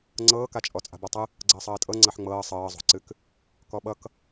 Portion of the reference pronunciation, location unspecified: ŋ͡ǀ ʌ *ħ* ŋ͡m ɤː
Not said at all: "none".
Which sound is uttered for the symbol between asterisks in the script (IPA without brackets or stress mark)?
ħ